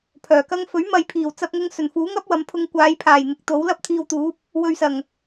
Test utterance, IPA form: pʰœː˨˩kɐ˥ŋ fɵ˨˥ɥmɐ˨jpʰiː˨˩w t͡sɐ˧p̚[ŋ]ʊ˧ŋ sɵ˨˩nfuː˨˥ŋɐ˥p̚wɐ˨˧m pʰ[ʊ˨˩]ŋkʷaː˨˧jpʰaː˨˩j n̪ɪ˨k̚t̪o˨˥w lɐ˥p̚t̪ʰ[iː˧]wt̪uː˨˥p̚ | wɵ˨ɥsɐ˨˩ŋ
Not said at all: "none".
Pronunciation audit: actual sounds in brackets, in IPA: ŋ, ʊ˧, iː˧

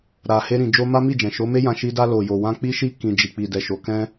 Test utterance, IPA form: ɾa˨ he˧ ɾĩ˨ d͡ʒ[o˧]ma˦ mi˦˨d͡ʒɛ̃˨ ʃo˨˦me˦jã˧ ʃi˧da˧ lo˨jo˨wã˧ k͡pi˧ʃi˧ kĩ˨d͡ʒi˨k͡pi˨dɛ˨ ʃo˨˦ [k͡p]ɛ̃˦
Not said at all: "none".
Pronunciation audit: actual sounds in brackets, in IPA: o˧, k

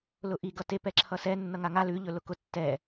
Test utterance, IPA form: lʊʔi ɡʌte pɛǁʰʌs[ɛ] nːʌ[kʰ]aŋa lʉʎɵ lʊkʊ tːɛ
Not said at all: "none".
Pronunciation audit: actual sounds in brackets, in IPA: ɛ, ŋ

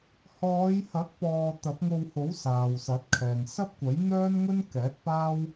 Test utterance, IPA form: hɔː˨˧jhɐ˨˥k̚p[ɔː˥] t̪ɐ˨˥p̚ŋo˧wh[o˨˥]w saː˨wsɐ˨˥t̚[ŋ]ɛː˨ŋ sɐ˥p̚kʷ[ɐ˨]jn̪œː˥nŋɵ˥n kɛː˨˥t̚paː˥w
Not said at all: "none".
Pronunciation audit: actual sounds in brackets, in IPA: ɔː˨, o˨˥, kʰ, ɐ˨˥

